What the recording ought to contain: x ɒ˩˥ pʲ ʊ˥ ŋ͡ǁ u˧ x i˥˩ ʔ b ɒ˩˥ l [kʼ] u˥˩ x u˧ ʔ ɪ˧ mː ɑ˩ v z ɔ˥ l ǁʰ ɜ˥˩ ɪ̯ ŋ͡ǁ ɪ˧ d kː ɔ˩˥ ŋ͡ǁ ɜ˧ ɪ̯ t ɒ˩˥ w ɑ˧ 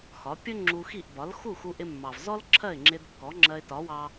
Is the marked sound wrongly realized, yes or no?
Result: yes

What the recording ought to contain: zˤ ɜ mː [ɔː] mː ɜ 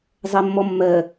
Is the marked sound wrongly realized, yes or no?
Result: yes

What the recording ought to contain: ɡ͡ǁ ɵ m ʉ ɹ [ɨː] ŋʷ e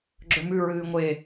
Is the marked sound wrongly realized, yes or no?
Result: no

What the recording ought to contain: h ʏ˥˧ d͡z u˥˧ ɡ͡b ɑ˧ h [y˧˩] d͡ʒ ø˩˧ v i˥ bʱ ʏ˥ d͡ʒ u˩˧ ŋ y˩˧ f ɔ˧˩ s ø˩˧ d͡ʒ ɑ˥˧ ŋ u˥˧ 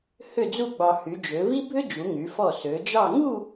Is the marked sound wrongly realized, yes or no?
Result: yes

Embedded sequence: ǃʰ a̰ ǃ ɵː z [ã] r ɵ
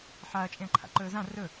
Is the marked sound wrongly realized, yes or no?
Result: no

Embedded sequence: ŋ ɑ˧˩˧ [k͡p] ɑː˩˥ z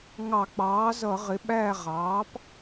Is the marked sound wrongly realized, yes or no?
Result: no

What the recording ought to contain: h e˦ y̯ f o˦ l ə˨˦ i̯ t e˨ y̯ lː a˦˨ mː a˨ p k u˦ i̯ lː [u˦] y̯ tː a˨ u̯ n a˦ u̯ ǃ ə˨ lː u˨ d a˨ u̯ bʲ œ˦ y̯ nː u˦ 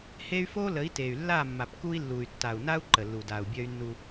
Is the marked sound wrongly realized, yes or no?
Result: yes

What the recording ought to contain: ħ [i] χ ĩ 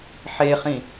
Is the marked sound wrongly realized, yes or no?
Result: yes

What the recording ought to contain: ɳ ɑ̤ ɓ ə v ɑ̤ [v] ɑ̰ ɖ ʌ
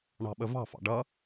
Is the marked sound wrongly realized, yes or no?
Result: yes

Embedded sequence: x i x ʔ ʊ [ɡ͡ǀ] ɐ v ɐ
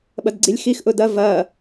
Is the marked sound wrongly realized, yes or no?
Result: yes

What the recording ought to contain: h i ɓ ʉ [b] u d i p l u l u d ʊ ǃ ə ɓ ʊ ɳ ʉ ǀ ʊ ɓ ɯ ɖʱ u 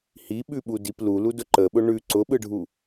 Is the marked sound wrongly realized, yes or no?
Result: yes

